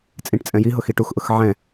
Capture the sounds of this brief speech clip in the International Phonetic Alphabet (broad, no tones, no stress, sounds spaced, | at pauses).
t͡sʼ ĩ ʈ t͡sʼ ɛ̃ j i ɦ ʊ x i ʈ u x ʔ ʊ x ʕ ɛ̃